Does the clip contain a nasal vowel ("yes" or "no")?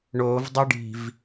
no